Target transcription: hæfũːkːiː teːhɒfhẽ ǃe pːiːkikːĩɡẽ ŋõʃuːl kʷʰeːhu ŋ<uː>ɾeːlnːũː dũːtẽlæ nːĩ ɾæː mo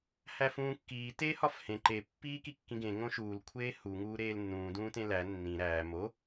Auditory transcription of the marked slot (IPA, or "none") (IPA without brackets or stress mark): uː